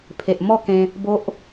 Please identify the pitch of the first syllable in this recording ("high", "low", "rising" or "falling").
low